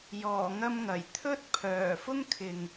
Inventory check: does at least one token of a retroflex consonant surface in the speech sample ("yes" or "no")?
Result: no